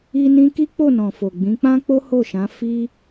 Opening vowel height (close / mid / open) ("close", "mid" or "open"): close